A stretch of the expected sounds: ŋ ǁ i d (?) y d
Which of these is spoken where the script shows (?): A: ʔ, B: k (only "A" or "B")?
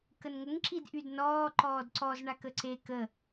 A